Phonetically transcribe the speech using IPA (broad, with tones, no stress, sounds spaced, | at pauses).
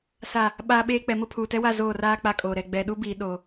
s a˦˨ | ɓ aː˦ ɓ eː˦ k͡p ɛ˨˦ m ʊ˦ pʰ uː˨ t ɛ˦ w a˦˨ z oː˦˨ r aː˦ k͡p a˦ kʼ oː˨ ɾ ɛ˦˨ ɡ͡b ɛ˨ ɗ u˦ b iː˨ ɗ o˨